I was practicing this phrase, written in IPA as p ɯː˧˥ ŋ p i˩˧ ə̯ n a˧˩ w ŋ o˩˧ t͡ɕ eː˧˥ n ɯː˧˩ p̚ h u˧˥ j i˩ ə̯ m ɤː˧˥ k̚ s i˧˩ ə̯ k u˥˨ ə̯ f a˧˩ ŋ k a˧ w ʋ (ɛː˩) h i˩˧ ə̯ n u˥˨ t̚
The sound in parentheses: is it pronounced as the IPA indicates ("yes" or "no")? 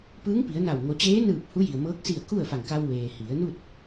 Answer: no